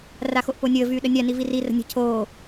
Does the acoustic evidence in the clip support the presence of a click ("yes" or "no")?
no